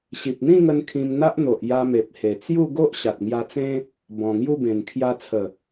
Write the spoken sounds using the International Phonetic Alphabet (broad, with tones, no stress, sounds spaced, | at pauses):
ɕ i˨ p̚ n̪ ĩ˥˧ ŋ ə˧ n kʰ ĩ˧ m n̪ a˦ ʔ n̪ o˨ ʔ j a˧ m e˨ p̚ h e˨˩ t͡s j u˥˧ ɡ o˦ ʔ ɕ a˨ t̚ ŋ j a˧ t͡s ẽ˦ | b ɔ̃˨˩ ŋ j u˥˧ b ẽ˨˩ n kʰ j a˧ t͡sʰ ə˨˩